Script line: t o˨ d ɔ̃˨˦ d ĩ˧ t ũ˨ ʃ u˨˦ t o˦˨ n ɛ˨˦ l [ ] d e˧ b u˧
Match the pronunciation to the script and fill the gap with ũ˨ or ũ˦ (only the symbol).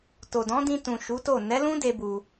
ũ˦